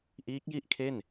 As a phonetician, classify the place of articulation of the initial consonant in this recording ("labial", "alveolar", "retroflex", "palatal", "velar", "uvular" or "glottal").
glottal